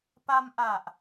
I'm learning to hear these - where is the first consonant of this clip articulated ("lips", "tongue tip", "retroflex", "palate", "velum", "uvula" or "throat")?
lips